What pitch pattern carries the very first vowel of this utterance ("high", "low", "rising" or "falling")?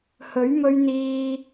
rising